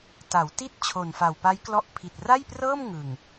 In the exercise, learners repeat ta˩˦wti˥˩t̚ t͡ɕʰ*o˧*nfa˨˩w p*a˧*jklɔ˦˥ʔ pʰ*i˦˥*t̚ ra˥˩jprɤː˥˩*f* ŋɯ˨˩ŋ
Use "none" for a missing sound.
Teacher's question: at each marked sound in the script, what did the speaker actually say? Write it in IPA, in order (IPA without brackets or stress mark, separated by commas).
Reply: o˨˩, a˦˥, i˨˩, m